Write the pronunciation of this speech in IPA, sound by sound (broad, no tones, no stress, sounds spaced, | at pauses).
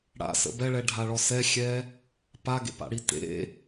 ɽ a̰ s ə̰ b ɛ ɭ ɛ ɖʱ a ɭ ɔ s ɛ xʲ ɛ | p a ɡ ḛ p a̰ ɽ i t ḛ